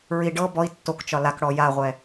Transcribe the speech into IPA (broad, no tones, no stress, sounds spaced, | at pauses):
ɹ i ɖ ɤ b ɔ i̯ tː o k t͡ʃ ɒ l a k ɽ ɔ j a ʁʷ ɛ